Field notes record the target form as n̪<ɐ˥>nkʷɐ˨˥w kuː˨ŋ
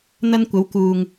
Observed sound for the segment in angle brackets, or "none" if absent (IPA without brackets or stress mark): ɐ˥